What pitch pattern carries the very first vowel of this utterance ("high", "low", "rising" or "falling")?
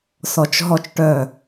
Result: low